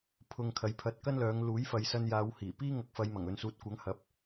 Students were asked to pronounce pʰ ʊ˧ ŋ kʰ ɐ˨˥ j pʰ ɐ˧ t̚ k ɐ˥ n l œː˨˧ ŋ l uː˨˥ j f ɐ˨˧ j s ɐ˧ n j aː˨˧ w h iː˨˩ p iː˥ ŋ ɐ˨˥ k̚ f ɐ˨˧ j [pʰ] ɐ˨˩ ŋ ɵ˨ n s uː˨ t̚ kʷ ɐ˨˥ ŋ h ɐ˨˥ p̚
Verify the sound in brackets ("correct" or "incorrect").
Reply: incorrect